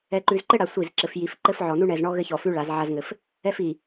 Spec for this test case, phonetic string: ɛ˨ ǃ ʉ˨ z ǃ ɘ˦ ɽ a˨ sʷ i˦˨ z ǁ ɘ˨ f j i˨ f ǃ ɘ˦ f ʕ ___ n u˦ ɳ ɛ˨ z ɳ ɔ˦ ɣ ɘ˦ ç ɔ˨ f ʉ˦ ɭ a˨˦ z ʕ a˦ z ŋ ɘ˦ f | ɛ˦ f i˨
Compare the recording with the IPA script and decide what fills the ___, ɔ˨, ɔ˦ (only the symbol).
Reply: ɔ˨